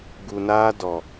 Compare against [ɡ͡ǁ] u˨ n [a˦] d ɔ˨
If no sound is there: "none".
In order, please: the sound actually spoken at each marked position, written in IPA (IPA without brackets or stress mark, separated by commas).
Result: ɡ, aː˦